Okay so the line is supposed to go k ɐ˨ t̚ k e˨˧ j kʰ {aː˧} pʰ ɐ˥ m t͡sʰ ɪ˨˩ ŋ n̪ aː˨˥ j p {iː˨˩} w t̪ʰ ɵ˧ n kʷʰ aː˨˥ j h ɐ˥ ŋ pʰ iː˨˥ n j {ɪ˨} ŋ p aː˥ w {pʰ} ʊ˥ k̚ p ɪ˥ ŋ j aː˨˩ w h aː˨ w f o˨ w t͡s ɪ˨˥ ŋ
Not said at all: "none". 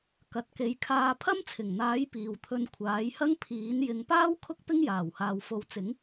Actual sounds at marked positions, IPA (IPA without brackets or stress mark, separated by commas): aː˧, iː˨, ɪ˨˧, kʰ